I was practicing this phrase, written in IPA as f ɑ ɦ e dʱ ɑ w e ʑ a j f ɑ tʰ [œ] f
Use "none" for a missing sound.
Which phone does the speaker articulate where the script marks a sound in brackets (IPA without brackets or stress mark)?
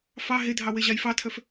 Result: œ